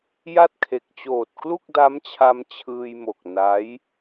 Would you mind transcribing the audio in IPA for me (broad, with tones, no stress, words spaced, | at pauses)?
ja˥˩t̚kʰe˨˩k̚ t͡ɕoː˨˩t̚klu˥˩k̚da˦˥mt͡ɕʰa˧m t͡ɕʰɯː˧jmo˨˩k̚ na˦˥j